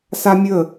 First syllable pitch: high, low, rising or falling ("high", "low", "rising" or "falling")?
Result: high